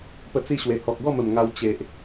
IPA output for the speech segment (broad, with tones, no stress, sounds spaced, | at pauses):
p ə˧ t͡s i˧ ɕ w e˨˩ h ɔ˨ k̚ ɡ ɔ˥˧ m ə˨˩ m ŋ a˧ w t͡ɕ e˨ ʔ